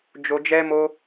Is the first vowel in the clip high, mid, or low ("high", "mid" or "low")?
mid